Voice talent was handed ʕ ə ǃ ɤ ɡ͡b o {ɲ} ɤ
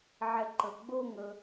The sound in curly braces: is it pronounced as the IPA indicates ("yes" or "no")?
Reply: no